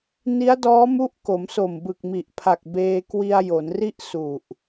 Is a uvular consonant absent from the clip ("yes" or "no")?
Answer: yes